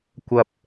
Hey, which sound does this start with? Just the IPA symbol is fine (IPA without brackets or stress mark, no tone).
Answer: kʷ